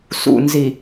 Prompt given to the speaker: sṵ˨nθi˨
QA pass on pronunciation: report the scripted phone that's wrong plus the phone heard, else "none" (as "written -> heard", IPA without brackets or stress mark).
θ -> z